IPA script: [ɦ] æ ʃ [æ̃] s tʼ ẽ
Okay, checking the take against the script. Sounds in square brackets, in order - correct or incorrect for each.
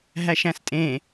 correct, correct

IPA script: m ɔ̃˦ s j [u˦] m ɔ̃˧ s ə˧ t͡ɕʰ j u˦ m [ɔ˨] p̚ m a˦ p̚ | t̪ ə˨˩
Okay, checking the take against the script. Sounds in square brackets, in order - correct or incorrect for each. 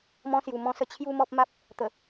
incorrect: u˨˩, incorrect: ɔ˦

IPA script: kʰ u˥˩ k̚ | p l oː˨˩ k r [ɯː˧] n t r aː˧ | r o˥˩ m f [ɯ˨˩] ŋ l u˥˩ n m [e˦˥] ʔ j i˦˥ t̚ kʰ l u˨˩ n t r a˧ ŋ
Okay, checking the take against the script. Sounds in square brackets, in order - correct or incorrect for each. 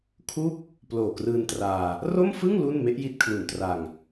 correct, incorrect: ɯ˥˩, correct

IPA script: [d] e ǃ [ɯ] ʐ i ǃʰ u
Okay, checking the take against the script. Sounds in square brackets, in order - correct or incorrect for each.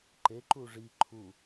incorrect: ǃ, incorrect: u

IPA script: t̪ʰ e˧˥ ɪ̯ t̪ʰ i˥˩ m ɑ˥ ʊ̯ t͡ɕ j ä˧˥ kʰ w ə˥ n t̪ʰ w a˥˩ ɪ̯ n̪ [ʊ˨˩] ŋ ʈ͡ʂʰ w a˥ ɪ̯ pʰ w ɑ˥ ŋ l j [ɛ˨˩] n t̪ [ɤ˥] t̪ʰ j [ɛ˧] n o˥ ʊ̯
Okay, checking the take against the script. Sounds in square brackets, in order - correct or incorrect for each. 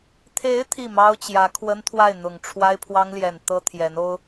correct, correct, correct, incorrect: ɛ˧˥

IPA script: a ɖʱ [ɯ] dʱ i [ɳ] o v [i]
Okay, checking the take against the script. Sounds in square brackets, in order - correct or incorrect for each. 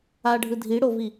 correct, incorrect: ɽ, correct

